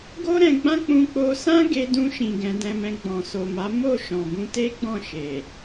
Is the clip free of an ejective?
yes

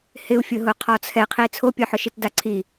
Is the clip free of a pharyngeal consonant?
no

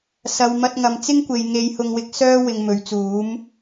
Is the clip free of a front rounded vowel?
no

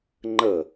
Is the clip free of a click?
no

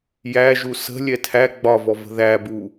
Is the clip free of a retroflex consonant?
yes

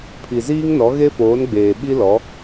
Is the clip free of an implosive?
no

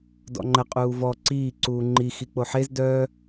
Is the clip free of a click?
no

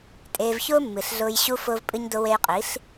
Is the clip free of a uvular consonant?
no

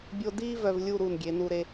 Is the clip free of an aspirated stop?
yes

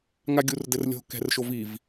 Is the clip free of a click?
yes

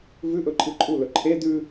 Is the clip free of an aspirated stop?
no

